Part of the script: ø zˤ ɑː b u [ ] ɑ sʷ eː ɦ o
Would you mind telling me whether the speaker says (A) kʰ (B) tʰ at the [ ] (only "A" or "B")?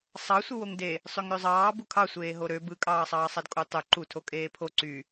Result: A